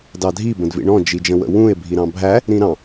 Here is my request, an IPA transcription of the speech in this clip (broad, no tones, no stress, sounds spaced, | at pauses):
d ɑ dʱ i b ə̃ d v ḭ ɳ ɔ̃ d͡ʒ i d͡ʒ ə̃ w ə̰ w ũ e̯ bʱ i ɾ ɑ̃ bʱ æ | ɾ ĩ ɾ ɑ̃